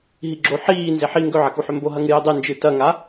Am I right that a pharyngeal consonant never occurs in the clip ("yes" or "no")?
no